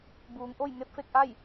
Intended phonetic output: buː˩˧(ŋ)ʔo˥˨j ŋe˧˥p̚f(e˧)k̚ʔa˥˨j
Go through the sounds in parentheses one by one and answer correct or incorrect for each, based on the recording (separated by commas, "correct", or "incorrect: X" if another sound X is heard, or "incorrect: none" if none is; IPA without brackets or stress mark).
correct, correct